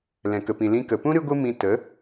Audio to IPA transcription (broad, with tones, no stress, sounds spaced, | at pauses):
l ɛ̃˨ k ə˨ p ĩ˨ l ĩ˧ k ə˨ p ũ˦ ɾ ɨ˦ ɡʷ ɨ˦ m ĩ˧ t ə˨˦